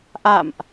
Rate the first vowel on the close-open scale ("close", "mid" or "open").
open